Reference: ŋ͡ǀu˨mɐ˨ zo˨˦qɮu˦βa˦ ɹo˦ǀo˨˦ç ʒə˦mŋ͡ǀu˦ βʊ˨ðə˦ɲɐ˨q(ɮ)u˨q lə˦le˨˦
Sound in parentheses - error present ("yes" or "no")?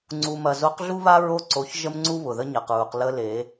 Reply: yes